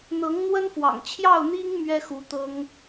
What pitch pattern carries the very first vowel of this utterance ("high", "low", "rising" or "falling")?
rising